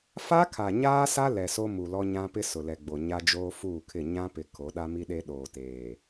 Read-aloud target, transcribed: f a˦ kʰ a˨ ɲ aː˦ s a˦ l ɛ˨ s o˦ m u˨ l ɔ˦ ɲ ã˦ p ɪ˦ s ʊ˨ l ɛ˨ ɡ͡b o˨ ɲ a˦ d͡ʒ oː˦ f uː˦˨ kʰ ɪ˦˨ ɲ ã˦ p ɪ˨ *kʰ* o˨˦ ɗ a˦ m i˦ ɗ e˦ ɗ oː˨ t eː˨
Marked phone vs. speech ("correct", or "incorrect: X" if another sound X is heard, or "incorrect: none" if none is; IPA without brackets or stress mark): correct